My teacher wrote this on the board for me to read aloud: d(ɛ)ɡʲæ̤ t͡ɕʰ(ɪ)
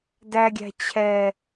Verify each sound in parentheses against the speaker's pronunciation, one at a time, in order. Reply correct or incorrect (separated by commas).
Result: incorrect, incorrect